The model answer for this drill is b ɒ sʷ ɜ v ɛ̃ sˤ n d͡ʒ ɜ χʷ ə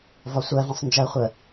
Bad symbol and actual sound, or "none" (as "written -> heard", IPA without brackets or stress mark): b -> v